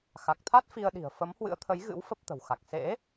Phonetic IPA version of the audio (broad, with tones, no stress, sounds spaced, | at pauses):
x a˨˩ k̚ t̪ʰ a˦˥ t̚ f i˧ ə̯ ɗ i̤˨˩ ə̯ f ə˨˦ m h w ɨ̰˧˥ ə̯ t̪ʰ ə˨˦ j ɣ ɨ̰˧˥ w f ə˦˥ p̚ t̪ ə̤˨˩ w x a˨˩ k̚ s ḛ˧˥